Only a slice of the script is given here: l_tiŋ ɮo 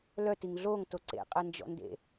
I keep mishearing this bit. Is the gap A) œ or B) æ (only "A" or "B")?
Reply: A